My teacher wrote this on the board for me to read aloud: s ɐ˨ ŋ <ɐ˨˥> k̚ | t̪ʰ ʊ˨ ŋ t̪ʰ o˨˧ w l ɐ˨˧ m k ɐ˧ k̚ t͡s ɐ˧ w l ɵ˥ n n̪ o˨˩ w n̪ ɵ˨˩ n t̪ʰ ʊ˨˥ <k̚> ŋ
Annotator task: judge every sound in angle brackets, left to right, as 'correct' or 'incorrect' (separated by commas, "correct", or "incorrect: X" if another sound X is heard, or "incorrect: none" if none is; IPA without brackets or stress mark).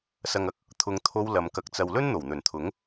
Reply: correct, incorrect: none